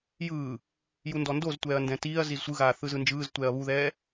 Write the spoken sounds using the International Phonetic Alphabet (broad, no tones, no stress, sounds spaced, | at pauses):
j ɯː | j u n d ɔ n d o z tʷ ɛː ɐ̯ n d ɛ̃ t iː ɐ̯ z i z sʷ ɯ ɣ aː θ ɯ z ɯ n d͡ʒ ɯː z tʷ ɛː ɐ̯ β u ð ɛː